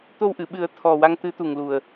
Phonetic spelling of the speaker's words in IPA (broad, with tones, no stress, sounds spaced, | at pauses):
t̪ o˧ w ʔ ɨ˨˩˨ ɓ ɨ˨˩˦ ə̯ t̪ʰ ɔ˨˩ w a˧ ŋ t̪ ɨ˧˥ t̪ u˨˩ ŋ l u˨˩ ə̯